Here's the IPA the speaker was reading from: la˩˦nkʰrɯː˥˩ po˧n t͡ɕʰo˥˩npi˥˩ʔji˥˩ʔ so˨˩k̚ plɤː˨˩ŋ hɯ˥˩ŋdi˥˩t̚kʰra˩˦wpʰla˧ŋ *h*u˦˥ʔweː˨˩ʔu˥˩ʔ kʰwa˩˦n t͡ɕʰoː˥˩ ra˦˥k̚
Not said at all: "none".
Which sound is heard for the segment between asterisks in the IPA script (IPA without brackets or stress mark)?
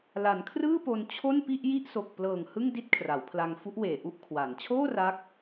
f